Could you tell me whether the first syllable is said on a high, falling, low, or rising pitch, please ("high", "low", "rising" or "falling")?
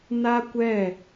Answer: high